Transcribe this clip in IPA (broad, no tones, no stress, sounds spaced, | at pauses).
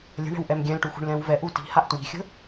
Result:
lʲ ə̤ ɳ ɛ̤ w ʔ ɛ m ɡʲ ɛ̃ l ʈ u x ṳ ɳ l ɛ̃ w v ɛ ʔ u t i̤ h a ʔ t w i̤ xʲ ə̤